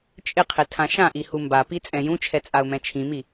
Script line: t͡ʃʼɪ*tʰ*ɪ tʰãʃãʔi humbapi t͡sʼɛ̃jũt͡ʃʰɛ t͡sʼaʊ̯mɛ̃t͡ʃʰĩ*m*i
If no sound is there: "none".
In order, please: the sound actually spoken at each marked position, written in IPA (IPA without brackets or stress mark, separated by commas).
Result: qʰ, m